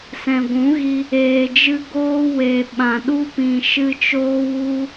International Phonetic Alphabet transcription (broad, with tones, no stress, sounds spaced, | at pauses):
s ɛ̃˨ ɡʷ ũ˨˦ ɣ i˧ | eː˨ d͡ʒ ɨ˧ ɡ oː˦ w e˧ ɓ ã˨ ɗ u˦ p ĩ˨ ʃ ɨ˧ t͡ʃ oː˦ w u˦